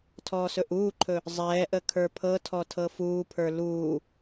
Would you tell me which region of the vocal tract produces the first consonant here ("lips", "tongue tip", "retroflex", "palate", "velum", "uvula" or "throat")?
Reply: tongue tip